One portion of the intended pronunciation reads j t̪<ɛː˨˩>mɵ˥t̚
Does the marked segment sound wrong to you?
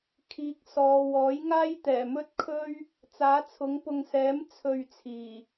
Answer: no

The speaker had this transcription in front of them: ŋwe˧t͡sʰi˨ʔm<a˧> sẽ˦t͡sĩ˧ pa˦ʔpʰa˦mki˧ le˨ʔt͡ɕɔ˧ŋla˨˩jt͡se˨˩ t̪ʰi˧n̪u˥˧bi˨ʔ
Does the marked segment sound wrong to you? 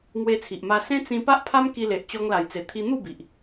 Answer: no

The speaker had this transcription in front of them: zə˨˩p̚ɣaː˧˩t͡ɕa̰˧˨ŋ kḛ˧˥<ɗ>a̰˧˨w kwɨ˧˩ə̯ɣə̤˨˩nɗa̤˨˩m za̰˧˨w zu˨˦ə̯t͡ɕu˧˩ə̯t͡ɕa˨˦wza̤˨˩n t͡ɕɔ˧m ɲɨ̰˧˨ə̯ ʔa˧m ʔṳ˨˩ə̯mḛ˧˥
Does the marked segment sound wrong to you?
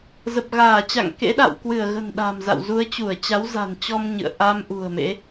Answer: no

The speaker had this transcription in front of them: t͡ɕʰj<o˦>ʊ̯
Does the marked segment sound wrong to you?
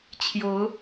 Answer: yes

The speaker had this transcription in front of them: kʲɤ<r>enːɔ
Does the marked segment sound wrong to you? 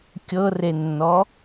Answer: no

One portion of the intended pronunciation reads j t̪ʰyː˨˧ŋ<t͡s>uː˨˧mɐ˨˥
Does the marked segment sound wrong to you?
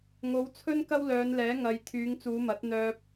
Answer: no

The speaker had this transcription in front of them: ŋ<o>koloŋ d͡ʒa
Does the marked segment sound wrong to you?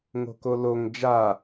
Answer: yes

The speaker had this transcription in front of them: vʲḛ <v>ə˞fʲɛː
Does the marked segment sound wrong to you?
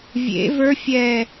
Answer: no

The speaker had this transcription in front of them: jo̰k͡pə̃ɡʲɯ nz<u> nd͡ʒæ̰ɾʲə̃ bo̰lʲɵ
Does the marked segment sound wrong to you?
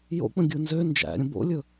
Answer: yes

